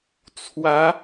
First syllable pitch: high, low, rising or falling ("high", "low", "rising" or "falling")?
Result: rising